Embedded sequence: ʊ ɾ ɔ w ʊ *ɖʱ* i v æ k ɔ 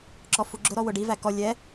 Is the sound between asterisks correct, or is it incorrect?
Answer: incorrect